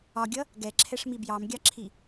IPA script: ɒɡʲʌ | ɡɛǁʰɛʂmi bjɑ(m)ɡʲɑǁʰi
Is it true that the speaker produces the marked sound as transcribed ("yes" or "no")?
yes